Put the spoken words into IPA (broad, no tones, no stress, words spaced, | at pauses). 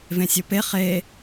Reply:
vẽsʲope χe